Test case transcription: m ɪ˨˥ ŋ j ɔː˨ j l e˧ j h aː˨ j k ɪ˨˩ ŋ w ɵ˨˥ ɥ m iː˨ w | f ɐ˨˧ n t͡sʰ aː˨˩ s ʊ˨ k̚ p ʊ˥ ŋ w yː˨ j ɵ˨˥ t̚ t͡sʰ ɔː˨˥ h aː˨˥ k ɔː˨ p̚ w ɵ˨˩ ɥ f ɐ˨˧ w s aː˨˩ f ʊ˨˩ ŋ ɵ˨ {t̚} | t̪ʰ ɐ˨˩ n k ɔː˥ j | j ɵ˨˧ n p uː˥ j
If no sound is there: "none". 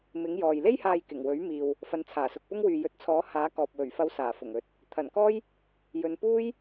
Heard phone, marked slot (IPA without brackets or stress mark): t̚